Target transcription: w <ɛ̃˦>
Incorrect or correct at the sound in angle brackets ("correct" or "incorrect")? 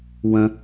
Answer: incorrect